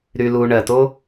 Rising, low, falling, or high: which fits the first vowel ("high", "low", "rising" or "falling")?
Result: low